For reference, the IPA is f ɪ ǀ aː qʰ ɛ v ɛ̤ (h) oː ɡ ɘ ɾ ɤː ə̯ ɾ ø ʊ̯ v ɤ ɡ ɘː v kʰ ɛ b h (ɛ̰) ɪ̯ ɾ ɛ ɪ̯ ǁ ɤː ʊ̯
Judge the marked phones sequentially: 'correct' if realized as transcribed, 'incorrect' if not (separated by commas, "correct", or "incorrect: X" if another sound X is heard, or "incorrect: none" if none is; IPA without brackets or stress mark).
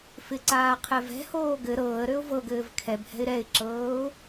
correct, incorrect: ɛ̤